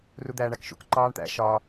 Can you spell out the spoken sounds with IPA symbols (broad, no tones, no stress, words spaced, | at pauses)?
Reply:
rud̪æːɳækʃṵk ǃɑːɳt̪æ̰ ʃɒ